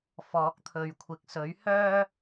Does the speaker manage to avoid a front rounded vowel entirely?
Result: no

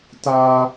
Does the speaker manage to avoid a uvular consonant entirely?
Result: yes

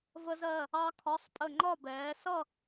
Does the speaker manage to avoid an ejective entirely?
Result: no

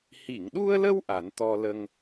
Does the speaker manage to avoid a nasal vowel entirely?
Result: yes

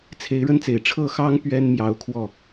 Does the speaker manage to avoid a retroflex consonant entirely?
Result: no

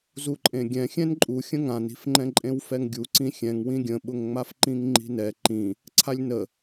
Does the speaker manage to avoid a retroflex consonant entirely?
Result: yes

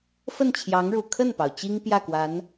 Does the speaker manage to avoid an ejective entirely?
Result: yes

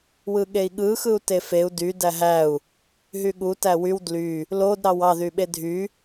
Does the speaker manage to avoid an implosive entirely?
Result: no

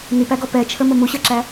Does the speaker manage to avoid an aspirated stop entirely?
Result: no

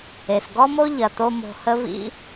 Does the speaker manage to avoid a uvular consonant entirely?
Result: yes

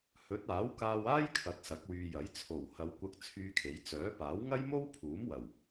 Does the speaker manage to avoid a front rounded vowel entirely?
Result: no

